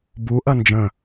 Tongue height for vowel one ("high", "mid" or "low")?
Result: high